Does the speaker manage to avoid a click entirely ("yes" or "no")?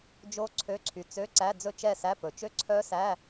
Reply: no